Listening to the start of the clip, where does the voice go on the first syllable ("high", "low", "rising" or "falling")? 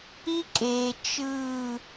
high